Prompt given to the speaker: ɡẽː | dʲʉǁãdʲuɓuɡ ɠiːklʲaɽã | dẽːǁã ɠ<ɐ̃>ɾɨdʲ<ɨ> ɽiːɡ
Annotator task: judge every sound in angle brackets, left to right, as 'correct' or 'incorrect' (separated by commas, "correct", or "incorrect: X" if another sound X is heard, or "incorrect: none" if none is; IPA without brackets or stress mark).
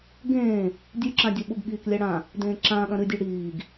correct, incorrect: ʉ